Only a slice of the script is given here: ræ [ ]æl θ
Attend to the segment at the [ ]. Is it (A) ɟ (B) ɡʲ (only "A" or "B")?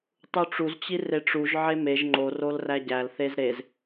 A